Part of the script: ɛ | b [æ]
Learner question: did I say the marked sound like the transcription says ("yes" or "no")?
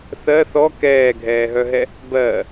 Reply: no